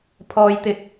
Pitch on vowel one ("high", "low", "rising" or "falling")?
low